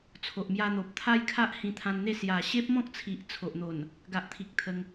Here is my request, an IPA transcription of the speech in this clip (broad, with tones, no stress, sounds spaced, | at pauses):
t͡sʰ o˨ ʔ m j a˧ n̪ o˨ p̚ t̪ʰ a˦ j kʰ a˦ ʔ h ĩ˧ t̪ʰ ã˧ n n̪ e˥˧ s j a˨˩ ɕ e˦ p̚ m ɔ̃˦ k̚ t͡sʰ i˨ ʔ t͡sʰ o˨ ʔ n̪ o˨˩ n | ɡ a˨ ʔ t̪ʰ i˨ k̚ t̪ʰ ə˧ ŋ